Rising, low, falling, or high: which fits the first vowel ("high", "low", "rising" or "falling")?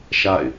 falling